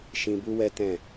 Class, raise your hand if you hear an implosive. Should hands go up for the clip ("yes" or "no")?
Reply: no